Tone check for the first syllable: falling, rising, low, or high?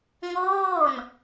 falling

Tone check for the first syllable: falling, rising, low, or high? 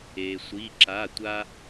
low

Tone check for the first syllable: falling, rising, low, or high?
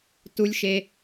high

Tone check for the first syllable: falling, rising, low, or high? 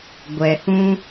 low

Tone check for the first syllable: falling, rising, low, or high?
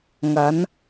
rising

